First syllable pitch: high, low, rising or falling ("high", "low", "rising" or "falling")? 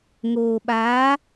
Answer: low